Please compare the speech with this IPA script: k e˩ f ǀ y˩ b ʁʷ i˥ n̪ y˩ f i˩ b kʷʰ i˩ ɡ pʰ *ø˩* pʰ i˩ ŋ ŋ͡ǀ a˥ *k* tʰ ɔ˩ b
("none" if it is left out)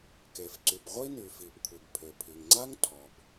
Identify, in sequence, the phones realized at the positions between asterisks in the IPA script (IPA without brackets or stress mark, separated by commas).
ø˩, ŋ